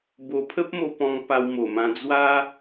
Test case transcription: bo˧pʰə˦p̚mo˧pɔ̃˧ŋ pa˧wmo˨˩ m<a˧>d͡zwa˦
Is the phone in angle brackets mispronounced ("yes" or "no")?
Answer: yes